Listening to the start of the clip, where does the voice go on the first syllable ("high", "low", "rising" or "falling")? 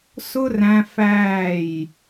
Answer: high